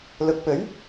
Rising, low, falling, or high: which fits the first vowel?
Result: rising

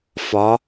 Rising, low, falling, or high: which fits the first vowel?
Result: rising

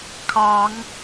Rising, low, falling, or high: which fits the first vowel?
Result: rising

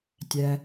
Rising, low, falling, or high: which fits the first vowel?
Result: low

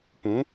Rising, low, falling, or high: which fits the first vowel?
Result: rising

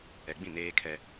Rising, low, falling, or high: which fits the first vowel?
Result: low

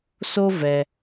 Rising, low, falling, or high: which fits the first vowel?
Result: high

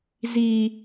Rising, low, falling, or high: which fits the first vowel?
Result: high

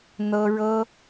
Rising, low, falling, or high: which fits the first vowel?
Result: high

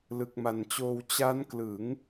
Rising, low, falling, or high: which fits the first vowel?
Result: low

